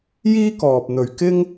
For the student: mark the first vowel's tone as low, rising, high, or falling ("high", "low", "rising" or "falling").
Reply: high